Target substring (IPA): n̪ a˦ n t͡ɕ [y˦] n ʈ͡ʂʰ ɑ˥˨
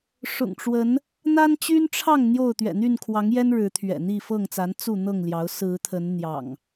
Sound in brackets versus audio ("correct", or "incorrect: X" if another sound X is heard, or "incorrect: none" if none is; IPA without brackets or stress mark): correct